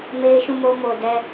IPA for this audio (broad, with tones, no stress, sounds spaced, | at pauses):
m e˦ ɪ̯ ʃ ũ˦˨ m o˦ m o˨ d ɛ˦